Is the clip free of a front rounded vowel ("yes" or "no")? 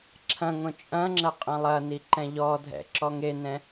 yes